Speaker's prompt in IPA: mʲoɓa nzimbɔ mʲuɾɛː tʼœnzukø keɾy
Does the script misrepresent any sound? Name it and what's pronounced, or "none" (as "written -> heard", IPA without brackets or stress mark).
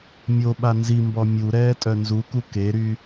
ø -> u